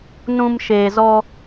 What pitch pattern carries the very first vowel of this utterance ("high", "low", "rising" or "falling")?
low